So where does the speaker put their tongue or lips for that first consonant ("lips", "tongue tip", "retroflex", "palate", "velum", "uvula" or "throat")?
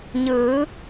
palate